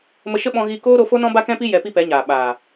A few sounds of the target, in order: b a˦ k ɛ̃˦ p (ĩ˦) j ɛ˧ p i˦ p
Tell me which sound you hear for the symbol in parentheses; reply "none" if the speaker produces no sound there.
i˦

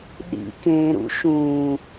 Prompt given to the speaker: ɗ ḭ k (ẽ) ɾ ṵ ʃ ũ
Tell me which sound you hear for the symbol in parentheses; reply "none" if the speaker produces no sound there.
ẽ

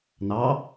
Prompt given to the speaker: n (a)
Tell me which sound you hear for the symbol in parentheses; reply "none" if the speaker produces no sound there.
ɑ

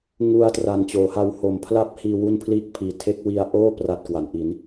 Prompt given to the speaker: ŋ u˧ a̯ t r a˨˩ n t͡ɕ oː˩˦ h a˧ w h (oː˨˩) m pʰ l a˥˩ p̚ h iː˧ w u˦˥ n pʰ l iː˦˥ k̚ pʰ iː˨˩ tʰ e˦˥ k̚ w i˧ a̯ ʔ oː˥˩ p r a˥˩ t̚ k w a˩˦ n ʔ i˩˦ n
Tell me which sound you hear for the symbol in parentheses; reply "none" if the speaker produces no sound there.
o˨˩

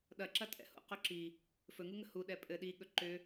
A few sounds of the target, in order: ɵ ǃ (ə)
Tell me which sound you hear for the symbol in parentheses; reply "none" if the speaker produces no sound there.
ʏ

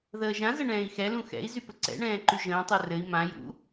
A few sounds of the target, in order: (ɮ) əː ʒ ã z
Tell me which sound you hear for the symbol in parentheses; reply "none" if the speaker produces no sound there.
ð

